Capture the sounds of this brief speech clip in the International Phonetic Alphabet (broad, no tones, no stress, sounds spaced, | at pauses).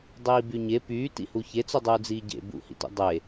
dˤ iː b y ɲ e p yː t ḭ h u ç e t͡s u dˤ uː d͡z iː ɟ ḛ b ṵ h ḭ t ḭ dˤ e